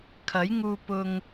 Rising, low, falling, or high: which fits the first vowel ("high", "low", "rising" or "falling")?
rising